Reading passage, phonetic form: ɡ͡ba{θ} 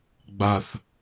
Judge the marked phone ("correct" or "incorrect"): correct